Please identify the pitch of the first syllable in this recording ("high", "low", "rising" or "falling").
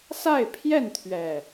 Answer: falling